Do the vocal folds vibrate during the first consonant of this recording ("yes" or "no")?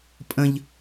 no